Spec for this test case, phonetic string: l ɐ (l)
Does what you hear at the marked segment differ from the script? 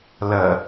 yes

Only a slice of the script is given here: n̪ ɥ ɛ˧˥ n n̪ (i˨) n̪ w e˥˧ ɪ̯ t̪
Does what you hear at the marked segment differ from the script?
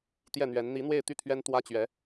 yes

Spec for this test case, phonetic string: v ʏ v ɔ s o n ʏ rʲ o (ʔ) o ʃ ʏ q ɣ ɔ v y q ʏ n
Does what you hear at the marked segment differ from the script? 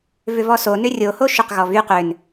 yes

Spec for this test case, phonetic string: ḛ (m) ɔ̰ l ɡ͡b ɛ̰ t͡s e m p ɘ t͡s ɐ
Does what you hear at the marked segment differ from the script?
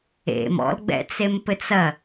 no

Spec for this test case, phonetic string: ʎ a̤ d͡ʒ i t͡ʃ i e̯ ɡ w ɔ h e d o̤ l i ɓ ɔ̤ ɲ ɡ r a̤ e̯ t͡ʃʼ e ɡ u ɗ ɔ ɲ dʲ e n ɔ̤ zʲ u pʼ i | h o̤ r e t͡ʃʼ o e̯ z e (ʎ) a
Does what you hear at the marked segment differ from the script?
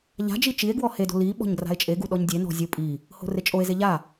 no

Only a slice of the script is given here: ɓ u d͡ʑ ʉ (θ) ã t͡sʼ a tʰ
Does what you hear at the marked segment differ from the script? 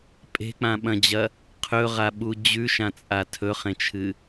yes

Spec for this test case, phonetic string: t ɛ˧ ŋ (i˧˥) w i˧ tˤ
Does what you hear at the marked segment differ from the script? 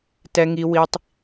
yes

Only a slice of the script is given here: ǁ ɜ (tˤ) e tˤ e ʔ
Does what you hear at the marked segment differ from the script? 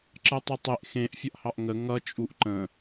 no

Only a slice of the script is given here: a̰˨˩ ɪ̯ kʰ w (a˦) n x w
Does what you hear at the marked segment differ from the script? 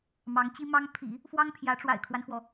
no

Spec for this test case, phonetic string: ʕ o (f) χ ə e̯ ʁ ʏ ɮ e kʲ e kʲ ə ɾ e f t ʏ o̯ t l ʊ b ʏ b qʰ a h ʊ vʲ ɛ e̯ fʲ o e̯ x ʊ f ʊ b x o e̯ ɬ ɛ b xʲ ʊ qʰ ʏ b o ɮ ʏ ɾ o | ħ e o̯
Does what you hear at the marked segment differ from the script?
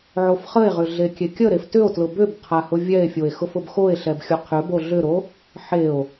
no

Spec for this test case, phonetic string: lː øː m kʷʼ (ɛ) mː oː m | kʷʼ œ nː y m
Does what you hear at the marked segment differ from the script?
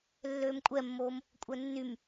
no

